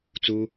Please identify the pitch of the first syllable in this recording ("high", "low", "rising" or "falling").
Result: high